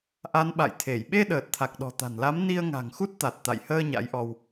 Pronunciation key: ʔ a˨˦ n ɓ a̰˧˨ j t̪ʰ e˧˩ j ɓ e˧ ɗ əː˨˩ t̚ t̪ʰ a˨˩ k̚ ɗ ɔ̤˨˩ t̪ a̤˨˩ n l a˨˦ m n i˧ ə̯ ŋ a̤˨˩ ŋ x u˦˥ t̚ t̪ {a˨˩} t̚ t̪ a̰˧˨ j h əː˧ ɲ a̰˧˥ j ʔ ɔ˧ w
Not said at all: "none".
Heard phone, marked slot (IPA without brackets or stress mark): a˨˩